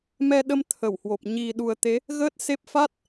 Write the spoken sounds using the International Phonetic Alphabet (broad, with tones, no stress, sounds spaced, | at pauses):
m ɛ˧ ɗ ə˧ m t̪ʰ ə˧˩ w h w o˨˩ p̚ ɲ i˨˩ ɗ u˨˩ ə̯ t̪ e˨˦ | ɣ əː˦˥ t̚ s e˦˥ p̚ f a˦˥ t̚